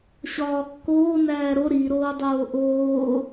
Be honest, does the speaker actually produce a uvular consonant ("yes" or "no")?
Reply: no